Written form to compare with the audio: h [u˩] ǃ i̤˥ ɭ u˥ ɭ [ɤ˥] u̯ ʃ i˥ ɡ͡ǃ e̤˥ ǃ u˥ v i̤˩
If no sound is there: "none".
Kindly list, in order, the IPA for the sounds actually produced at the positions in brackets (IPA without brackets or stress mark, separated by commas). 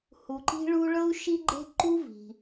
u˩, ɤ˥